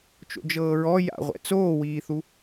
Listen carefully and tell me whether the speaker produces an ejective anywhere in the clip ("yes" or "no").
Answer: no